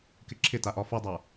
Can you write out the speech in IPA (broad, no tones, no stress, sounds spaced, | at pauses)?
k ɪ ǁʰ ɪ t a ʔ ɒ f u dˤ a